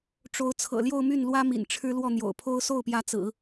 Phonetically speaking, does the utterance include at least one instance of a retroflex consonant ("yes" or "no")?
yes